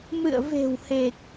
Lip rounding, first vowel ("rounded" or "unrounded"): unrounded